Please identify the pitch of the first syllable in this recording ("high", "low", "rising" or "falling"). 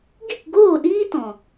falling